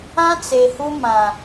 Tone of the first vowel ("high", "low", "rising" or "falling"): high